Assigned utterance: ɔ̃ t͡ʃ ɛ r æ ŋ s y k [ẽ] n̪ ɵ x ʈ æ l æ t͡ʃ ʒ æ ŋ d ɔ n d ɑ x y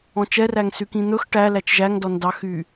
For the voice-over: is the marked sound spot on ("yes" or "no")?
no